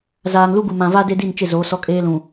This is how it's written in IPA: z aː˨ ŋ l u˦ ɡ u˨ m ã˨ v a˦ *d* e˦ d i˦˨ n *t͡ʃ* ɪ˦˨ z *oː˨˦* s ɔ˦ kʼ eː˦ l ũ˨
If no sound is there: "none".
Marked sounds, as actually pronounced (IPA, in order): d, t͡ʃ, oː˨˦

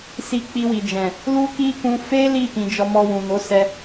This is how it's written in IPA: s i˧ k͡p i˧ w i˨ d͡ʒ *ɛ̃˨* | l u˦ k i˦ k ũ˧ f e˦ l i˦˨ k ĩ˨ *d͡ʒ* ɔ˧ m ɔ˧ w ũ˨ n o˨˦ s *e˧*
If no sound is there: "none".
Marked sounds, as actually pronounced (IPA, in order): ɛ̃˨, d͡ʒ, ɛ˧

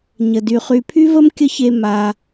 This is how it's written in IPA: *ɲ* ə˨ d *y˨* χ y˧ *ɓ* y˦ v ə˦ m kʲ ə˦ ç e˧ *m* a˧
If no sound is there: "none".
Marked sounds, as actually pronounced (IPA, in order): ɲ, y˨, pʰ, m

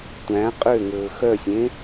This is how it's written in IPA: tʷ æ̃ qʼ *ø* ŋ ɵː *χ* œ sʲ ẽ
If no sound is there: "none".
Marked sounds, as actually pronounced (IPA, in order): ø, x

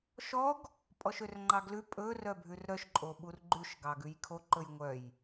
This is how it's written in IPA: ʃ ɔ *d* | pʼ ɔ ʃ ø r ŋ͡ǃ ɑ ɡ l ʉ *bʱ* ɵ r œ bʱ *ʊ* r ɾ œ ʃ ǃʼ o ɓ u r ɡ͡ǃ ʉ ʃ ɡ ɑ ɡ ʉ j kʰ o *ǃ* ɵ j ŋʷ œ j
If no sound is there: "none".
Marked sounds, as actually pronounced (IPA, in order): ɡ, pʼ, ʉ, ǃ

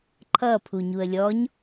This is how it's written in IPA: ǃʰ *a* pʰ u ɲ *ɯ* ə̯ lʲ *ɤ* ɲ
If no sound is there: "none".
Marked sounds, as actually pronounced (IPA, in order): ʌ, u, ɔ

